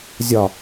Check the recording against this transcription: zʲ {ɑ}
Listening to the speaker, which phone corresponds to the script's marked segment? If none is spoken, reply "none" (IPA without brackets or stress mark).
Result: ɒ